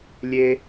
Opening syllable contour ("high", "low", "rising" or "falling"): high